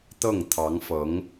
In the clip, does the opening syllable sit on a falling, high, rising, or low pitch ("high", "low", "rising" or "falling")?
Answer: falling